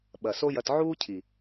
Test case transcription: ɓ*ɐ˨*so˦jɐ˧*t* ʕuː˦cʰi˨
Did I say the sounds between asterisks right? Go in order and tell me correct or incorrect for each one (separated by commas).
correct, correct